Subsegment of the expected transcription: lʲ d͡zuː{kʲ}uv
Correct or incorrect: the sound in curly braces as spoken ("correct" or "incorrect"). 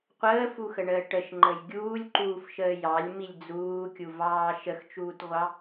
correct